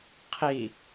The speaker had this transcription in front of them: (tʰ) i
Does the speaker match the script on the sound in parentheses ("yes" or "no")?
no